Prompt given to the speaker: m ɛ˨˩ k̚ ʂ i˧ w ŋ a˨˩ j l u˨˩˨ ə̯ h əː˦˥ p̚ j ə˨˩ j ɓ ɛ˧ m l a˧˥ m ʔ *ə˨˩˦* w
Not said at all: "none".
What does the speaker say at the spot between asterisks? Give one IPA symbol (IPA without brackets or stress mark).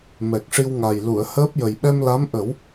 ə˨˩˦